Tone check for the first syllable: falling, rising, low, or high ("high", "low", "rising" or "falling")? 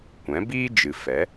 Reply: rising